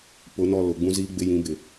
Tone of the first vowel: rising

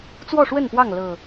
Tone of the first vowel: falling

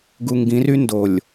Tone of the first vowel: low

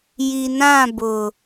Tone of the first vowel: low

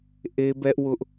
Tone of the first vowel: high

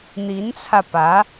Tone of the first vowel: rising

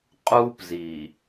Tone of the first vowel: high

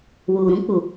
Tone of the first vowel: low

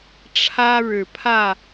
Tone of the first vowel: high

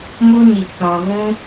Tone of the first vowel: high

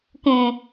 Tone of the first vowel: low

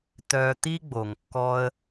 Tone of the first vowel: high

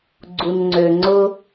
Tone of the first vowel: low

